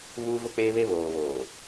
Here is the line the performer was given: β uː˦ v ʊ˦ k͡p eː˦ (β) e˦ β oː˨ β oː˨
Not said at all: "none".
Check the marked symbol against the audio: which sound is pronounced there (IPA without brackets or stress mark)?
β